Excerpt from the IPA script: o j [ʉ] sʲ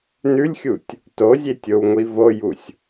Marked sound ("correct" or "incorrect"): incorrect